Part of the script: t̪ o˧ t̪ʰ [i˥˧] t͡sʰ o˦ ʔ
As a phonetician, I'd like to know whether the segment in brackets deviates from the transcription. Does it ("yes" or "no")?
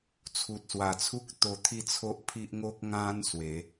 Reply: no